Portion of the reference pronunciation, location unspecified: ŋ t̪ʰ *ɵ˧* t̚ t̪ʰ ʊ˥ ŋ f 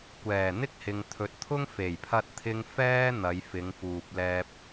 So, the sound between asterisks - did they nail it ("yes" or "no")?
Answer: no